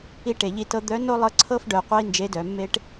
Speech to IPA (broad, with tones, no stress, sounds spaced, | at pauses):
i˧ ʈ e˩ ʎ i˧ t ɤ˧ d̪ œ˧˥ n o˥ lˠ ɤ˧˥ ǀʰ ɤ˥ f ɖ œ˩˧ qʷ ɤ˥ i̯ n d͡ʒ e˧˥ d œ˩˧ mː e˥ ʈ